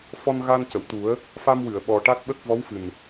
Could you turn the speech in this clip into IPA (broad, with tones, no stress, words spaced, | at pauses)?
fɔ˧nɣa˧ncə˨˩˨wt̪u˨˩˦ə̯ | fa˧mwɨ˨˩˨ə̯ ɓɔ˨˩ʈa˦˥t̚ɓə˦˥k̚ vɔ˧˥wfɨ˨˩n